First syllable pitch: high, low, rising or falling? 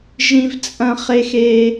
high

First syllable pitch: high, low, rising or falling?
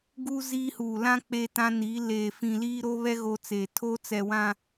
high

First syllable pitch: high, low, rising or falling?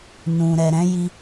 low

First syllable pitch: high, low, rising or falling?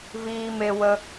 high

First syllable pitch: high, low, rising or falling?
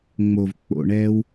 low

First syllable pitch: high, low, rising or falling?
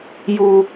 low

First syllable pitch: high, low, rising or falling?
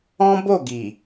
high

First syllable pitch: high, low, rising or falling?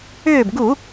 falling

